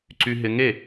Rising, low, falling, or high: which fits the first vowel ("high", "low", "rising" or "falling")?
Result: high